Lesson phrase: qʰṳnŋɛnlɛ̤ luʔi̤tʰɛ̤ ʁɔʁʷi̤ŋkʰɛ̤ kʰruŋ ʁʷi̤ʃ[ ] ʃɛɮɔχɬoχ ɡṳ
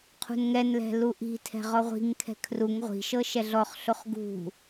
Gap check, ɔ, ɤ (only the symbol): ɤ